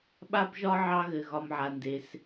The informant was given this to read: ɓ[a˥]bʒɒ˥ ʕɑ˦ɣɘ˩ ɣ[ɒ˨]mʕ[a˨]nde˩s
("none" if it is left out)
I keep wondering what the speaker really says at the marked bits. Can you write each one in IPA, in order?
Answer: a˥, ɒ˨, a˩

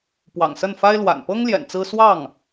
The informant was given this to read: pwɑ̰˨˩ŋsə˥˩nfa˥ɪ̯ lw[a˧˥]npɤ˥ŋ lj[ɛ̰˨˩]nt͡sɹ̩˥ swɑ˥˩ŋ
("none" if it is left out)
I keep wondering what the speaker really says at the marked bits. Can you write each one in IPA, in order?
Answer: a̰˨˩, ɛ̰˨˩

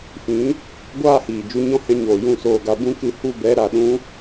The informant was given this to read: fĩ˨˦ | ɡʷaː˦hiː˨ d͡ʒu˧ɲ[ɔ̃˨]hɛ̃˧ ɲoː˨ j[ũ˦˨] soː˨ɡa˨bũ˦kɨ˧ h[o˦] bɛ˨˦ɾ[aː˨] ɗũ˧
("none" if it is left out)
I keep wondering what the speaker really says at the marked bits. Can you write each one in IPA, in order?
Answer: ɔ̃˦, ũ˦˨, u˦, a˨

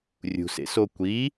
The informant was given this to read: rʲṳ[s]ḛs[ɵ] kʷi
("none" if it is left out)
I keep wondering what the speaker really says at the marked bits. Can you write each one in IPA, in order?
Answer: s, o

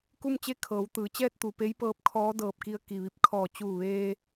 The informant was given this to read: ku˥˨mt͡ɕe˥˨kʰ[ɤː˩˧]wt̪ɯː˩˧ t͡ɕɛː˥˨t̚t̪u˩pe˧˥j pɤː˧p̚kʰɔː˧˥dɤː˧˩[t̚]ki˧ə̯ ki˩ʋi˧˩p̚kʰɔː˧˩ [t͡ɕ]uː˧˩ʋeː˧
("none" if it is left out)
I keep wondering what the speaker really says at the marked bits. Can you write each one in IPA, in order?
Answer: ɤː˩˧, p̚, t͡ɕ

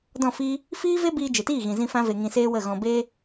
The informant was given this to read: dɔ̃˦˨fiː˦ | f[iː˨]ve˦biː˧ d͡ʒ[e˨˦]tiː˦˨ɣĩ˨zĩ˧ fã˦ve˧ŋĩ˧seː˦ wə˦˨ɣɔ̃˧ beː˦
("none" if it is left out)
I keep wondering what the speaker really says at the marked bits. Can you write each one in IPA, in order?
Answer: iː˦, e˨

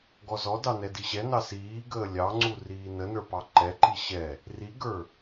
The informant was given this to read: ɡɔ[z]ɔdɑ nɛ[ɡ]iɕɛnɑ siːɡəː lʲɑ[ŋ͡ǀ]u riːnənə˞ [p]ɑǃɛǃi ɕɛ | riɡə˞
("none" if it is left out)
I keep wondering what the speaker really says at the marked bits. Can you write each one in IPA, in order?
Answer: z, d, ŋ͡ǀ, p

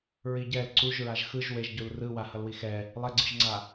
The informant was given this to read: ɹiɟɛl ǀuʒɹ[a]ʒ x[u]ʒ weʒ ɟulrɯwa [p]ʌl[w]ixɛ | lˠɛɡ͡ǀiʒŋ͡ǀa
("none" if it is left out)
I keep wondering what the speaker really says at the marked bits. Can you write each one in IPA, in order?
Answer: a, ɯ, h, w

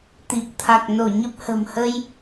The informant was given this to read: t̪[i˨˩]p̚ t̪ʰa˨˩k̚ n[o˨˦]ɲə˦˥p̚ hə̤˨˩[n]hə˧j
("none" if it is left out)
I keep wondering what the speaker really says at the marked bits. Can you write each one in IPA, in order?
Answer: i˨˩, o˧˩, m

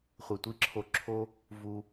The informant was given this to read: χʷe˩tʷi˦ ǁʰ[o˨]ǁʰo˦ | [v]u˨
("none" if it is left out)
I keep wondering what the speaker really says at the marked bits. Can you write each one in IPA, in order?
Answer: o˨, v

